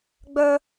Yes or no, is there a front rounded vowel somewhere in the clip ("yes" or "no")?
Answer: yes